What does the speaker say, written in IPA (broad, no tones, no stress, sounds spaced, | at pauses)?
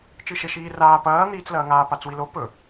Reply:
t͡ʃ ɨ ʃ e ʃ iː r aː p ɐː n̪ iː t͡s l ɐː ŋ aː p a t͡s w i l o p ɵ